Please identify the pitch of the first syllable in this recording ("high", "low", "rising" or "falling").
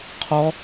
high